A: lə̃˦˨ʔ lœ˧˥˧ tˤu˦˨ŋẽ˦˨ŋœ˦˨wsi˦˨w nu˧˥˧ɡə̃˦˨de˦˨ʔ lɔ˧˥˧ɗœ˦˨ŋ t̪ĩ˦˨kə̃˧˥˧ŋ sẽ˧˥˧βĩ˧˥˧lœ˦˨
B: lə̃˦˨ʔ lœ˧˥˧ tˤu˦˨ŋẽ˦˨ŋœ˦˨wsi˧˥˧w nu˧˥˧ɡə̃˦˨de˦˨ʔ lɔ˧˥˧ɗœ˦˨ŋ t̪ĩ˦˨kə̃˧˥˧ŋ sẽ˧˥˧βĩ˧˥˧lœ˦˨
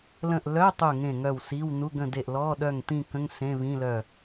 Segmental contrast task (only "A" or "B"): B